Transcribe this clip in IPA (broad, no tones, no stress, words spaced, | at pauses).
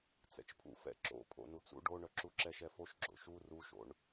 t͡sɛ̰t͡ʃpʰṵ fɛ̰ǁo̰ pʰo̰nut͡sṵ ɖoɳœ ǁuǁɛʃɛfoʃ ɡ͡ǁo̰ʃu ruʃo̰ɳ